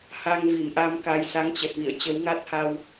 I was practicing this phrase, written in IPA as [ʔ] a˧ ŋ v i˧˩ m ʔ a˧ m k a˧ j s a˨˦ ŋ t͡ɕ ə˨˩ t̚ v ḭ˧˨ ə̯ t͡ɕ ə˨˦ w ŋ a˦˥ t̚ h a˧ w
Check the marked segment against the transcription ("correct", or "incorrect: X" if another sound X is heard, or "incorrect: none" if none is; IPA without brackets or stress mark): incorrect: h